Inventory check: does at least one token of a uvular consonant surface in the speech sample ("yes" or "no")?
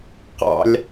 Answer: yes